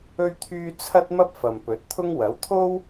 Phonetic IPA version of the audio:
ɵ˥ ɥ t̪ʰ yː˥ t͡sʰ ɐ˥ t̚ m ɐ˥ p̚ f ɐ˨ m p ɵ˨˥ t̚ t̪ʰ ʊ˥ ŋ w ɐ˨˥ w t̪ʰ o˥ w

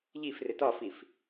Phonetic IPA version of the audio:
ʎ i f r ɪ t ɒ f i f

